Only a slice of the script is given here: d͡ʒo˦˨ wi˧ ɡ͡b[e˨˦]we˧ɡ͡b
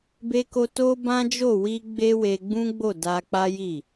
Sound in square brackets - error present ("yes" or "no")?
yes